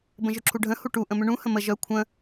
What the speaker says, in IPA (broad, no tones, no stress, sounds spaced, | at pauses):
b ə̃ ʒ ʏ ǁʰ u ɖʱ ə̃ h u ʈ u ʔ ə̃ m ʏ ɳ ũ h ə̃ m ə ʒ œ kʷʰ ə̃